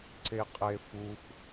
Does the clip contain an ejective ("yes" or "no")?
yes